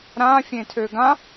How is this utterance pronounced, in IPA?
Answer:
ɾ ãː fʲ ẽː tʰ øː ɡ ã

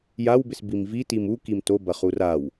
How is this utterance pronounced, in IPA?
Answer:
j a w b ɪ s b i m v i t i m u k i m t o b ɐ χ u r a w

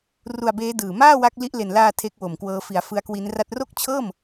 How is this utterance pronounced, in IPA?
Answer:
r u˧ a̯ b eː˦˥ d ɯː˨˩ m aː˥˩ w a˦˥ k̚ l i˦˥ ʔ l e˨˩ n l aː˧ tʰ e˦˥ k̚ w o˨˩ m k w ɤː˦˥ f i˨˩ a̯ f ɯ˦˥ a̯ k w i˦˥ n r a˥˩ t̚ r o˥˩ k̚ t͡ɕʰ ɤː˥˩ m

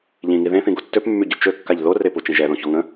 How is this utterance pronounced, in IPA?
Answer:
ʎ ĩ ŋ i ð ẽ θ ĩ ɡ o tː ø p mː y ɟ ø t͡ʃ ø kː a ʎ ð o r e p u t͡ʃ ĩ ʒ ɛ ð õ ç ɔ ŋ ə̃

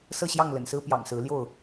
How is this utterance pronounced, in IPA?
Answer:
s ɤ˥˨ ɕ j ɑ˥˨ ŋ l ə̰˨˩ n s ɹ̩˦ p j ɑ̰˨˩ ŋ s ɹ̩˨˦ l j o˥˨ ʊ̯

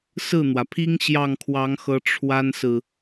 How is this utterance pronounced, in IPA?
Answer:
s ɹ̩˥˩ n̪ w ä˩ pʰ i˥ ŋ ɕ j ɑ˥˩ ŋ kʰ w ɑ˧˥ ŋ x ɤ˧˥ ʈ͡ʂʰ w a˥ n s ɹ̩˨

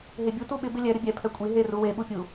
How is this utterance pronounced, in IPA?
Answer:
ɦ e bʲ u t u ɓ ɪ b ɪ lʲ ɛ ɾ ɪ bʲ ɛ pʰ ɛ kʷʼ i ɦ e r u w e ɓ u pʲ u

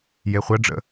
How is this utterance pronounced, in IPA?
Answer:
j e χʷ ɐ ɖ͡ʐ ə̰

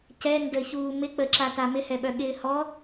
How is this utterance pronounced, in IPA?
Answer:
c ɛ n d ə ç uː m ɪ k͡p ə ǁ a t a m ɪ h ɛ ɓ œ ɠ ɪː h ɔ

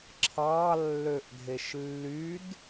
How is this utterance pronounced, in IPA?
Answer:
ǁʰ ɑ lː ø ʔ dʱ e ʃ lː y d

